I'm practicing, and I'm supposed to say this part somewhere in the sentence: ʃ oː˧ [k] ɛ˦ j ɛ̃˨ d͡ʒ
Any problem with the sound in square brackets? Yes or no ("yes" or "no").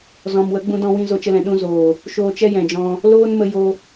yes